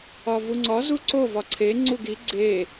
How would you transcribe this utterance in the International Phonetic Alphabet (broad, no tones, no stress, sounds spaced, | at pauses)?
ɒ v u ŋ͡ǀ ɒ z u ǀ o v ɒ ǀʰ e ŋ͡ǀ u ɡ i ɡ͡ǀ e